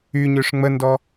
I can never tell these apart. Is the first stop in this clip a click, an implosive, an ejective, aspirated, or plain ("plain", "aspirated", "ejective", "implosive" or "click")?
plain